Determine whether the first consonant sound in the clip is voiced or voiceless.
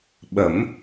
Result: voiced